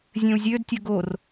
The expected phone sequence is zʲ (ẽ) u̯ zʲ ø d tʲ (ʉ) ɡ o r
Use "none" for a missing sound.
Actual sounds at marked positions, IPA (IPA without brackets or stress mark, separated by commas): ẽ, ə